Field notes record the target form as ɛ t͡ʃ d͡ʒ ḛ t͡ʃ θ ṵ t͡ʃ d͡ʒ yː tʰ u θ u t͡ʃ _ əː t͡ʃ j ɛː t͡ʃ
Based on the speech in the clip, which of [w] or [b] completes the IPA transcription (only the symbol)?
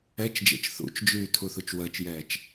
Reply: w